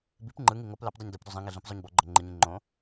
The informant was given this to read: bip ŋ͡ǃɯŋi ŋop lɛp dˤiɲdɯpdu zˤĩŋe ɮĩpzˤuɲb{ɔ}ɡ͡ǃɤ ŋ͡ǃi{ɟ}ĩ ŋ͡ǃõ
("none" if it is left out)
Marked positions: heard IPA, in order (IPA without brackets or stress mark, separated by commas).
ɔ, ɲ